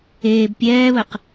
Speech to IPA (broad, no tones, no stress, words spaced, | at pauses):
eːb pʲɛːβəq